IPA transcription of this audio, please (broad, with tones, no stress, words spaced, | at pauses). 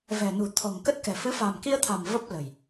vɛ̤˨˩ nṳ˨˩t̪ʰɔ̤˨˩ŋkə˦˥t̚kɛ̤˨˩ fɨ˨˦fa̤˨˩mki˧ə̯t̪ʰa̤˨˩m və˦˥p̚ lə̤˨˩j